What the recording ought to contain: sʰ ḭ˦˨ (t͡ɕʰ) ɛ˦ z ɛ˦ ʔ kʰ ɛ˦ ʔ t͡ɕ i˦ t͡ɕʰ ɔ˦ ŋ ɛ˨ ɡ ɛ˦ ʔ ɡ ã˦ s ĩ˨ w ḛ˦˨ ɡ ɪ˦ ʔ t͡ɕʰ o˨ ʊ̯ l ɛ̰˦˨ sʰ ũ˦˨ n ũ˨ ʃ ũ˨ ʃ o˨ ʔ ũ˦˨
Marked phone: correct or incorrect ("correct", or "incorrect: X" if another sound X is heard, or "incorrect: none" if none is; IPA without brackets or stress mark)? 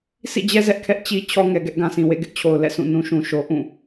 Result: incorrect: d͡ʑ